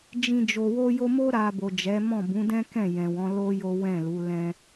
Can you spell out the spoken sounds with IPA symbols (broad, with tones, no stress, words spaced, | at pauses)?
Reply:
d͡ʒĩ˧ d͡ʒo˨wo˧jo˧mo˦ ɾa˧ bo˨d͡ʒɛ˨˦mɔ̃˦˨ bũ˨˦dɛ̃˦ kɛ̃˦˨ jɛ̃˨wɔ̃˨˦ lo˦ jo˦wɛ̃˦˨lu˨˦ lɛ̃˦